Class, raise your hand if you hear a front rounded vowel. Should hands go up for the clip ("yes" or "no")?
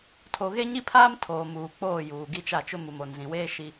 no